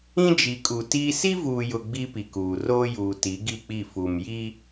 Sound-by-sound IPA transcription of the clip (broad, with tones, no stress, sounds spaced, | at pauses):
ĩ˦ d͡ʒ i˨ kʼ u˨ t iː˦ s i˦ v uː˨ j ʊ˨ ɡ͡b i˦ p i˨ k uː˨ r oː˦ j uː˨ t i˨˦ ɡ i˦˨ k͡p i˦˨ f u˨ m j iː˦